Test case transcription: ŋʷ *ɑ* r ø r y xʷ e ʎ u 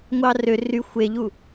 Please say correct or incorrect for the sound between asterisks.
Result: correct